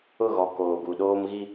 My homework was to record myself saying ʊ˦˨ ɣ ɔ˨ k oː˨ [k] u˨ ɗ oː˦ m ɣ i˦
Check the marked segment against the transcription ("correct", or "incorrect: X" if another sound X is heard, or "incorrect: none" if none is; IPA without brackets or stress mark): incorrect: ɡ